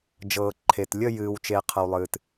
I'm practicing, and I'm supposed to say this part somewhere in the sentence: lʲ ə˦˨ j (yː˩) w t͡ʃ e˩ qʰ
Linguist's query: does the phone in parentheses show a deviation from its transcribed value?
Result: yes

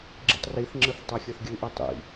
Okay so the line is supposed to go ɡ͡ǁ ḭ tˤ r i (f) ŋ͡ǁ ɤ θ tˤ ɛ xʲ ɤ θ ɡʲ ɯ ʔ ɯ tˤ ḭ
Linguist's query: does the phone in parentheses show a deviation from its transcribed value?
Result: yes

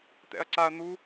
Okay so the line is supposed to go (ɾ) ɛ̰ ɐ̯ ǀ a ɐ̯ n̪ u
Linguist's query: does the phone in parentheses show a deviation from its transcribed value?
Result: yes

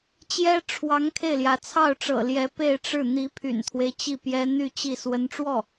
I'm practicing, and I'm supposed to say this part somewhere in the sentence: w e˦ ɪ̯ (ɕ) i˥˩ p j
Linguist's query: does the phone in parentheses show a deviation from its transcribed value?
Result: yes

